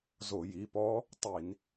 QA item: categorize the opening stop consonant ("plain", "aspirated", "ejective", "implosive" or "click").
plain